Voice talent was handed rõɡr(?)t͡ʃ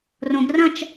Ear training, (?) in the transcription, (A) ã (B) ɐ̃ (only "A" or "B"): B